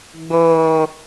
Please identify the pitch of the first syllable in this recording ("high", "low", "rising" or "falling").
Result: high